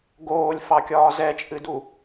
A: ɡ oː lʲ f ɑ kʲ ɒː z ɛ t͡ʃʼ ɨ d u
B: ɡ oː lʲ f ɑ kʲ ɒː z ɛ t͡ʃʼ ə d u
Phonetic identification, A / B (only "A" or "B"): A